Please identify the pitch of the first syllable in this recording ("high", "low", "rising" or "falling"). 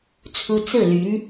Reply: high